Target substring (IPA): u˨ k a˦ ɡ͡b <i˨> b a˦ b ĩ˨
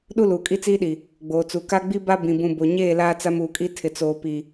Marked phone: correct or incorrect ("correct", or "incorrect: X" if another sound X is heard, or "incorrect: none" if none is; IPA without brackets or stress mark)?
incorrect: i˦